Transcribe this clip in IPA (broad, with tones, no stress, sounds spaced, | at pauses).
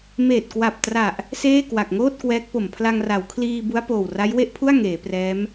m eː˨˩ t̚ k w a˨˩ p̚ t r a˨˩ ʔ | s eː˥˩ k w a˨˩ k̚ ŋ oː˥˩ t̚ k w ɛː˦˥ k̚ p o˨˩ m pʰ l a˧ ŋ r a˩˦ w kʰ l iː˧ b u˦˥ a̯ p oː˨˩ w r a˦˥ j w e˥˩ ʔ pʰ u˥˩ a̯ ŋ eː˩˦ p r ɛː˦˥ m